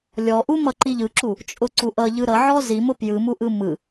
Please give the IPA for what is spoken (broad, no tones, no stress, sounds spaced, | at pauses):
lʲ ɔ ʔ u m ʌ ǃ i ʎ ɯ ǁ u | t͡ʃʼ ʊ ǀ u ʔ ʌ ʎ ɯ ɾ ʌ ʕ ɔ z i m ʊ p j ɯ m u ʔ ɯ m ɯ